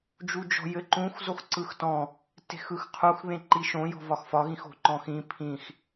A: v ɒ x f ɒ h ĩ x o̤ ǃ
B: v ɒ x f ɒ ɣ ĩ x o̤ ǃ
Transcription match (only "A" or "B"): B